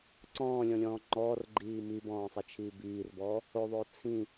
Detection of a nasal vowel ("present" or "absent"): present